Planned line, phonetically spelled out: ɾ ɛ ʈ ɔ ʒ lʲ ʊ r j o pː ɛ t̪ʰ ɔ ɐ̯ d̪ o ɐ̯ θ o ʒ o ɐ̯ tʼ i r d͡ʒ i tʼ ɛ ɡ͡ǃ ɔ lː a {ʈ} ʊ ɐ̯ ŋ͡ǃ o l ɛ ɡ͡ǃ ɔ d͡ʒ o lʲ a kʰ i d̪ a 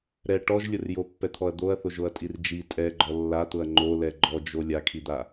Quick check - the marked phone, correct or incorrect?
incorrect